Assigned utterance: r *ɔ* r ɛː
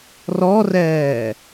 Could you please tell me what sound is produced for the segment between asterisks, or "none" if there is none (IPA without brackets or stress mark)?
ɔ